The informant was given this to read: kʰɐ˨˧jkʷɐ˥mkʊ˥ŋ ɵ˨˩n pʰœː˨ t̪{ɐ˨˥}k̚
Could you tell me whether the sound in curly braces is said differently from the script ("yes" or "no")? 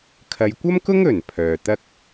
yes